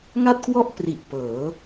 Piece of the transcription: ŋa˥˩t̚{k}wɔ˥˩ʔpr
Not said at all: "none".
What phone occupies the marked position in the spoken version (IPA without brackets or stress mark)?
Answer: k